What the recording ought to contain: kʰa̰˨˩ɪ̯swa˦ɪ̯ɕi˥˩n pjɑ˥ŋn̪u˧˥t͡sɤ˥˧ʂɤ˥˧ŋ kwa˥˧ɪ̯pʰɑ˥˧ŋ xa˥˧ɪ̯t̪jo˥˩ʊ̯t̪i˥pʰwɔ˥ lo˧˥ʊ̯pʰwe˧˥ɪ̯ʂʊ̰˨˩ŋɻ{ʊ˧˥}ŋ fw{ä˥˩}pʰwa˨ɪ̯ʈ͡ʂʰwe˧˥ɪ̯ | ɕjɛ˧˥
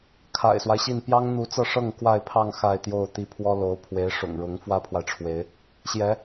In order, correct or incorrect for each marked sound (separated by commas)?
correct, incorrect